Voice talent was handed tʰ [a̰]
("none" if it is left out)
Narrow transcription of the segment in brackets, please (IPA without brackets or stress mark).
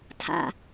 a̰